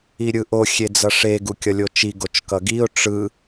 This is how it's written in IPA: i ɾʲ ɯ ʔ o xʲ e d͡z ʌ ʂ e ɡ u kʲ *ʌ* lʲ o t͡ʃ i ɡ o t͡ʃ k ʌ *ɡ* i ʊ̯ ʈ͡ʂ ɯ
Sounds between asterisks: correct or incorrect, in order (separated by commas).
correct, correct